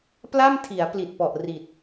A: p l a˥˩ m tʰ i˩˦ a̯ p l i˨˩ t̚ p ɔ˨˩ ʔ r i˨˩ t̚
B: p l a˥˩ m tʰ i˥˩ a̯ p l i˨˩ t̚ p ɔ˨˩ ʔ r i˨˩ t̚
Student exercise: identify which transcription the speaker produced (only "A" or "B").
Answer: A